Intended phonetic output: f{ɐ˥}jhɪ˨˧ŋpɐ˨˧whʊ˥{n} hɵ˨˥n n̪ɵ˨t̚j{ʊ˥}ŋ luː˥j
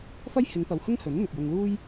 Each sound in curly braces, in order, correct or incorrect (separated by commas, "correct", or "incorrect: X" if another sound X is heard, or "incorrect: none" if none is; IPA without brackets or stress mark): correct, incorrect: ŋ, incorrect: ʊ˧